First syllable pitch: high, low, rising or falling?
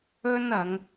high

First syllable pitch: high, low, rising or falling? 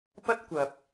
high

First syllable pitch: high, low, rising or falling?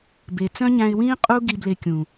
low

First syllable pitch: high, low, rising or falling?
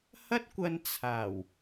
high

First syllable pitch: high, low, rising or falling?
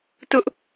high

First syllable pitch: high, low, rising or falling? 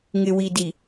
low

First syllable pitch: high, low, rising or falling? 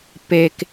low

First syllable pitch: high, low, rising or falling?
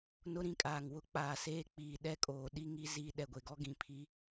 high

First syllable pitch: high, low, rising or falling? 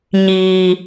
low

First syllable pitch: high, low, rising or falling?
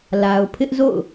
low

